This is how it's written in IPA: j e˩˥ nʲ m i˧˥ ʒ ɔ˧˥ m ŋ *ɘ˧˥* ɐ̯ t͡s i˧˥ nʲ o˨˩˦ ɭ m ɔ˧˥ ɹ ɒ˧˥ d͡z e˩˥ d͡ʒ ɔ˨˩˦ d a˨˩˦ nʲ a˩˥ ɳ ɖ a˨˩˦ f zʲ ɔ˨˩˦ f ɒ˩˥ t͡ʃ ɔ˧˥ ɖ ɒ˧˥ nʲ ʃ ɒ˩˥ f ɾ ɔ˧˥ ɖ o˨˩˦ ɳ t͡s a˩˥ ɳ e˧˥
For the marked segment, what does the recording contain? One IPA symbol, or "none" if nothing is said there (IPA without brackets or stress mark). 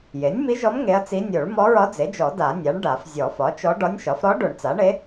e˧˥